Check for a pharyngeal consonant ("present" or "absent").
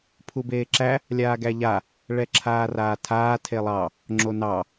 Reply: absent